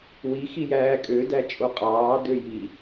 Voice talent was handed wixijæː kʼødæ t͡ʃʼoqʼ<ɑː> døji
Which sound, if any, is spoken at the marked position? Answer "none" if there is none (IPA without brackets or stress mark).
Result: ɑː